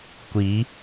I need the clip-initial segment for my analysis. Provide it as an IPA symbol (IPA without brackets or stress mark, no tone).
kʷ